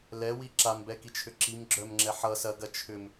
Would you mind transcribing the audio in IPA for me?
l ɛ w i ǁ a m b ɛ k i t͡ʃʰ ʏ ǁ i m ɡ͡ǁ œ m ŋ͡ǁ ɛ ħ ʌ s ɐ ɡ ɐ t͡ʃʰ ʏ m

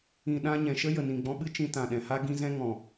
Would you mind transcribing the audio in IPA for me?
ĩ˨ ɗ ã˧ ɲ ɛ̃˨ ʃ ə˦ j ə˨ n ĩ˨ ɡ͡b ɔ̃˧ ɓ ɨ˦ t͡ʃ ĩ˧ t ã˨ ɗ ɛ̃˨ h a˦ ɡ ĩ˦ z ɛ̃˦ ŋ ɔ̃˨

